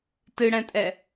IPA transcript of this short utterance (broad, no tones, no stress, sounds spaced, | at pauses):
t ɨ ɽ ɛ̃ tʼ ɛ